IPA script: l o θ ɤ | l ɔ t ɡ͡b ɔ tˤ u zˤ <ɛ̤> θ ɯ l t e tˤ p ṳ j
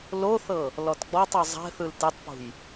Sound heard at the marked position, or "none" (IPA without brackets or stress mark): ɛ̤